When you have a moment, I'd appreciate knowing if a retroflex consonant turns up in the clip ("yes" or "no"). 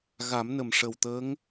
yes